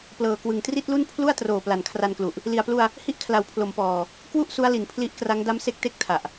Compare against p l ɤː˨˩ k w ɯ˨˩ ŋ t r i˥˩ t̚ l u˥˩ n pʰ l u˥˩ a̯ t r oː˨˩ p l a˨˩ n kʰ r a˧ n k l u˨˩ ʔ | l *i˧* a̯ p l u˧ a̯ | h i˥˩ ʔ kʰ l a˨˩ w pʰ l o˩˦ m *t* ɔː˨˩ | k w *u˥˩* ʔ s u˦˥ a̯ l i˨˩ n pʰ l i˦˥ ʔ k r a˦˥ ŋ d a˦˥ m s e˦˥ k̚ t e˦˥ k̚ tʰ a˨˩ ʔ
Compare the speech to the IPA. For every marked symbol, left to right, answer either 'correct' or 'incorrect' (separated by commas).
incorrect, incorrect, correct